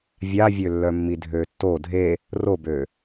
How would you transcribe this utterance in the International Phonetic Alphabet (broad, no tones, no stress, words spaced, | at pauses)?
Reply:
vʲavʲølːœmːi dʱøtːo dʱe | robø